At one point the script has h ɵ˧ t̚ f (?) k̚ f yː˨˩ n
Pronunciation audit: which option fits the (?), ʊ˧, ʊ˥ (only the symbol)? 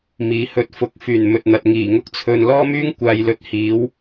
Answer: ʊ˧